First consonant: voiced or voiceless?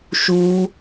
voiceless